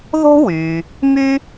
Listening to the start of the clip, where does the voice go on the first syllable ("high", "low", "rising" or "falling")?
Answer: high